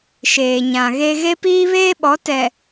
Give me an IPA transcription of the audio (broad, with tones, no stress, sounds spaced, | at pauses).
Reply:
ʃ eː˨ ɲ ã˨ ɣ e˦ ɣ e˦ p iː˦ β eː˦ ɓ ɔ˨˦ t ɛ˨